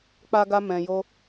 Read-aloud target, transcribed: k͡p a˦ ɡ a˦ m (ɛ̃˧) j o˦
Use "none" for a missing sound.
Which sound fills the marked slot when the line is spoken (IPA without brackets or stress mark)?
ɛ̃˧